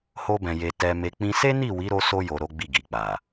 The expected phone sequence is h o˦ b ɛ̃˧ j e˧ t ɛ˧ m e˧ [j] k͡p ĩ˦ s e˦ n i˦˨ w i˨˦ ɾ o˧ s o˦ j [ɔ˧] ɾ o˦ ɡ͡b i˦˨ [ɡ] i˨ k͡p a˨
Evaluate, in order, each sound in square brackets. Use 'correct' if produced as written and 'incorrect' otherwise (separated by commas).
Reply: incorrect, incorrect, correct